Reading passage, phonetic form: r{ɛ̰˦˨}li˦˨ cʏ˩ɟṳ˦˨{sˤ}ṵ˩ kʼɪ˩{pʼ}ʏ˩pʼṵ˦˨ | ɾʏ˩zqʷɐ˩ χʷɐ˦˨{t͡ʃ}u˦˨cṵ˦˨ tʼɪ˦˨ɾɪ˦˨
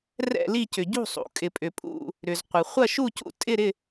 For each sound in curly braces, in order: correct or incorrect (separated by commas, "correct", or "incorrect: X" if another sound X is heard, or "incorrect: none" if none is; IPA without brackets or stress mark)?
correct, correct, correct, incorrect: ʃ